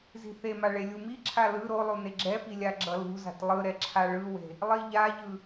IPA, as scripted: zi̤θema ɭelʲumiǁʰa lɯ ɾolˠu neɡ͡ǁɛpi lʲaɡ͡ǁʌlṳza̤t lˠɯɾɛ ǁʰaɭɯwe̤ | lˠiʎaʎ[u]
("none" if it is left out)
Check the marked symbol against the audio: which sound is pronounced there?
ɯ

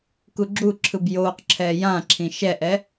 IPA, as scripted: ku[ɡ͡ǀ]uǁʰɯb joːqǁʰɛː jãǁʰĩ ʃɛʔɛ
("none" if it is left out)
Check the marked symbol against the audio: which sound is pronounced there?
ɡ͡ǁ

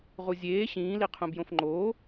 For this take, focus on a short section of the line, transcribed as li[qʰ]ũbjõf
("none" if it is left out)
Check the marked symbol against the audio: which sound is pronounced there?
qʰ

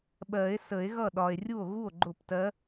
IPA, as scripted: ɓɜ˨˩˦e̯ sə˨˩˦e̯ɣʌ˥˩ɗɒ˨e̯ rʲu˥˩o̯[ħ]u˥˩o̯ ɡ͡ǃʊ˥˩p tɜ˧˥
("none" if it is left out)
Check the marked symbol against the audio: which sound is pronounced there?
ɣ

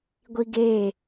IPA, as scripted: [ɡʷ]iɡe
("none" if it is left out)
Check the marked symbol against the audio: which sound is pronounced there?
ɡʷ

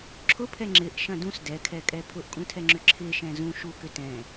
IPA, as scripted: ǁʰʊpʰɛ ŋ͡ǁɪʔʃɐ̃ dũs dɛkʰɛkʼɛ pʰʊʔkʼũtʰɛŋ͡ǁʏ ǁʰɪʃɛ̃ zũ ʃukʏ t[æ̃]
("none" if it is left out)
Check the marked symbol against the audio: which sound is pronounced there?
ɛ̃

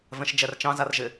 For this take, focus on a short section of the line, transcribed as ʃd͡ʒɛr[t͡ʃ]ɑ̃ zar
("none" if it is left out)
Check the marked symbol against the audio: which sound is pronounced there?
t͡ʃ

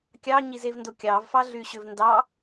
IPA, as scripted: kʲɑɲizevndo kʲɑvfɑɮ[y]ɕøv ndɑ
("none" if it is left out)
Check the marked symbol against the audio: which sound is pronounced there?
y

